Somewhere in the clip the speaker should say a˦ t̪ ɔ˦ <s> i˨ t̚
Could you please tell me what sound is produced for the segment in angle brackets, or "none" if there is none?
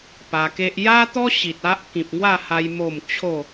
ɕ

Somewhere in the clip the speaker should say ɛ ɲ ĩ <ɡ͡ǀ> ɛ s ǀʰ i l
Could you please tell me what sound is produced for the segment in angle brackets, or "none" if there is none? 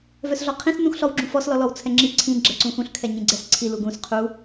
ɡ͡ǀ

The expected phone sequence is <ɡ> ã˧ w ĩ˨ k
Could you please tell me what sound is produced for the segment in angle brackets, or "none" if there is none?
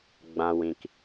ɡ͡b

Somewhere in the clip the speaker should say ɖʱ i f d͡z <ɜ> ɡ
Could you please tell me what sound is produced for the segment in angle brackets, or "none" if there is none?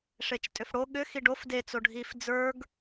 ə˞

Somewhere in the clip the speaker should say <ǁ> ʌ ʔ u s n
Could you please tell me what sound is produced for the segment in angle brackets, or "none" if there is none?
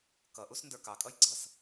k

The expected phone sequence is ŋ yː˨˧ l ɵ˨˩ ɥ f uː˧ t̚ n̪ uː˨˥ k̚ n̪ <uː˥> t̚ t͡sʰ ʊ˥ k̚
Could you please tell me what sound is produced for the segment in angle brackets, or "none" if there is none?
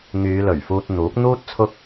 uː˥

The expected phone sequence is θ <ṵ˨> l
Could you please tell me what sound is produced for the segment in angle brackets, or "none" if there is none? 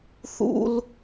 ṵ˦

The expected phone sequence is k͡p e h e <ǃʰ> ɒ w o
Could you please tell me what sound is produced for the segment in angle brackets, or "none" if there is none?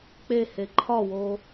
ǃʰ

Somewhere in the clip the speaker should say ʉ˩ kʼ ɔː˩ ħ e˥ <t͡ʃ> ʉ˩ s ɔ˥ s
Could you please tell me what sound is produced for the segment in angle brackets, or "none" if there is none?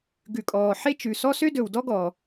t͡ʃ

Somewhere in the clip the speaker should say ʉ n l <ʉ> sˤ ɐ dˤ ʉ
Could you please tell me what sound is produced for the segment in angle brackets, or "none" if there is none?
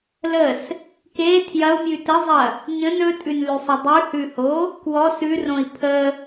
ʉ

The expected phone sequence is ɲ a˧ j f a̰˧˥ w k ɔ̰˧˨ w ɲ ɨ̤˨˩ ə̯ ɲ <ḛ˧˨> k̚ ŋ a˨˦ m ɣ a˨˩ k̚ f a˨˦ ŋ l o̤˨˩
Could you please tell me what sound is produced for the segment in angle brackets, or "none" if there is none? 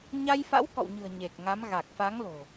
e˨˩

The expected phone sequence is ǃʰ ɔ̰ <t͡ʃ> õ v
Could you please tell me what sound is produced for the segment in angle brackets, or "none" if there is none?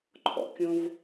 kʲ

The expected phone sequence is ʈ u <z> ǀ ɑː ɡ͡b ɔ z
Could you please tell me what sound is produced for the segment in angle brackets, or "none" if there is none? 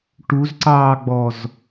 z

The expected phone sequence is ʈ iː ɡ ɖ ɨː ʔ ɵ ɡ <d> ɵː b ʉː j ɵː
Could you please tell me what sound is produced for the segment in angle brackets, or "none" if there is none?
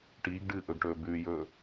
ʈ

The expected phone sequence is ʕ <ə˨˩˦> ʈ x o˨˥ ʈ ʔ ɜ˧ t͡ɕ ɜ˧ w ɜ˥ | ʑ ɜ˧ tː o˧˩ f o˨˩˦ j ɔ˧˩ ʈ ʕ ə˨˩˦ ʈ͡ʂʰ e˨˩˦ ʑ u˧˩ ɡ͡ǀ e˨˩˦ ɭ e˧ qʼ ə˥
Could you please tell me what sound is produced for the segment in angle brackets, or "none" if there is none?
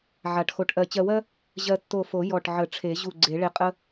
a˨˩˦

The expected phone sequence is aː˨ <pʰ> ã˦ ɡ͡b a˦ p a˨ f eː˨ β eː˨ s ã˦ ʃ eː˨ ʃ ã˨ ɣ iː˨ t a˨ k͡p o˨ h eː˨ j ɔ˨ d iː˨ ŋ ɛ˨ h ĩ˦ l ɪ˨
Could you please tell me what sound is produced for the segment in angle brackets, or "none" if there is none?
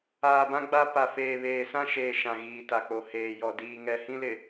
b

